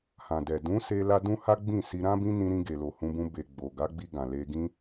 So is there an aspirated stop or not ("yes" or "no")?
no